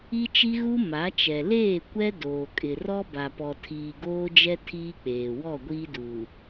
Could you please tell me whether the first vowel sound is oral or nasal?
oral